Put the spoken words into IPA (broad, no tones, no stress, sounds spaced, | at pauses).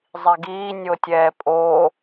zˤ i ɡ iː nʲ o tʲ ɛː pʼ o